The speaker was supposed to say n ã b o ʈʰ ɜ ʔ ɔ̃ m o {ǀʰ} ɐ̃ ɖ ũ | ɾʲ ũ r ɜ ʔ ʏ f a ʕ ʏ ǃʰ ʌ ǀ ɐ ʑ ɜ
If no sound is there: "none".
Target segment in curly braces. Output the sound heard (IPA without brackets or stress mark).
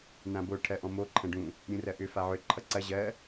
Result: ǃʰ